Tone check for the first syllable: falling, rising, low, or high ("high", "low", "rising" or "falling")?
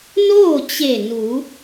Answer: falling